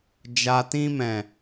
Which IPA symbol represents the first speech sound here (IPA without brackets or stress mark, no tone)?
d͡ʒ